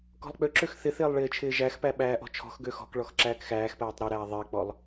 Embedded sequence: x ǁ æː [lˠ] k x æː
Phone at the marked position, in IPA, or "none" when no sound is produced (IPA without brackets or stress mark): none